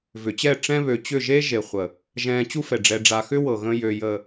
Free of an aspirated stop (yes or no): yes